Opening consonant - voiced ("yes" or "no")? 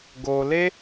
yes